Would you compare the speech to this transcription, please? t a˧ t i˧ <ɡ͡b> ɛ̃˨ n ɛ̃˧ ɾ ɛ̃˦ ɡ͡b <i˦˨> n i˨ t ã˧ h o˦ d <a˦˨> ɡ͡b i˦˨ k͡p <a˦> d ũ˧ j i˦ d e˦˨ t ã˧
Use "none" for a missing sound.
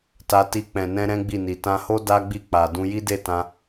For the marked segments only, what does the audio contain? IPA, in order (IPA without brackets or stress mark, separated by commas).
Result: k͡p, i˦˨, a˦, a˨